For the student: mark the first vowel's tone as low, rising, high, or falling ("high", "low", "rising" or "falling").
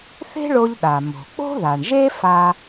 high